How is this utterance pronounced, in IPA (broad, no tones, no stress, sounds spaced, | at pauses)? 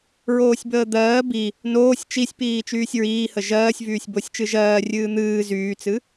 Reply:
ɹ oː sʲ b əː d̪ ɜː b i | n oː sʲ t͡ʃ i sʲ p iː t͡ʃ yː sʲ ɹ iː h ə ʒ ɜː sʲ v yː sʲ b o sʲ t͡ʃ ɨ ʒ ɜː rʲ ɨː n̪ ɨː z yː t͡s ɨ